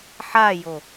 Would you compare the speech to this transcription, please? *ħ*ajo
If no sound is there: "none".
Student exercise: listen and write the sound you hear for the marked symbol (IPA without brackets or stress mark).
ħ